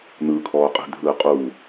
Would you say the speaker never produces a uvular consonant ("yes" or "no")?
no